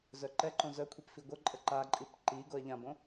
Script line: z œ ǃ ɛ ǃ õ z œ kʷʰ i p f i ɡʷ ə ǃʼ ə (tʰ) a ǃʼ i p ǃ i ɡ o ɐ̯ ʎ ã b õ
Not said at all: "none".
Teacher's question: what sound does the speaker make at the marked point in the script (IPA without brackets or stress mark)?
ǃ